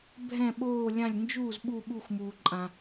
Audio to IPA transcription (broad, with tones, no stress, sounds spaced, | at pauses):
bʱ ɛ̃˦˨ ɓ oː˦˨ lʲ ã˦˨ lʲ n d͡ʒ uː˦˨ z ɓ u˦˨ ɓ u˦˨ x m uː˨ ǃʼ ã˨